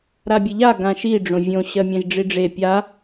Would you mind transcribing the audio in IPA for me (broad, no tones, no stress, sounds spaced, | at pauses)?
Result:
ɾ a bʲ e ʎ a ɡ ã ʃ i ɖ͡ʐ õ vʲ õ ɕ ɜ mʲ ɛ̃ ʒ ɖ͡ʐ i ɖ͡ʐ e pʲ a